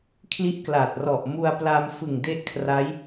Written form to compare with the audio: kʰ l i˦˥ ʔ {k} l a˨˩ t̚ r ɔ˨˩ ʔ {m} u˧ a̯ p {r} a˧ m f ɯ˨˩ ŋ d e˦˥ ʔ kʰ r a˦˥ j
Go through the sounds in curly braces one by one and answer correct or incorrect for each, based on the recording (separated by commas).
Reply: correct, correct, incorrect